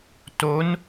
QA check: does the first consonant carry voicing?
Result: no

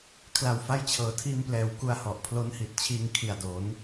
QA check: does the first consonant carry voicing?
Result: no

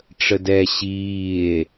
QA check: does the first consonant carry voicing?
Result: no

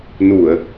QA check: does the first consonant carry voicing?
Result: yes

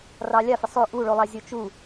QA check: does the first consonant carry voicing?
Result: yes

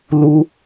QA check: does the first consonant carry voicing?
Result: yes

